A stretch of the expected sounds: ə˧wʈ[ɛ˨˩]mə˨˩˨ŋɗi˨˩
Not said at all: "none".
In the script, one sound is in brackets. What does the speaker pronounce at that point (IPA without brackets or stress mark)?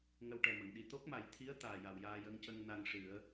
ɛ˨˩